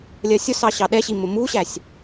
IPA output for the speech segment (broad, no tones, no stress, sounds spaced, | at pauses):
lʲ ɜ sʲ ʊ s ɑ ɕ ɑ ɗ ɛ ɕ i m ʊ m u ɕ æ sʲ